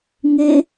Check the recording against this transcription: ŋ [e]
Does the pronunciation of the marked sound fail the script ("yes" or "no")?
no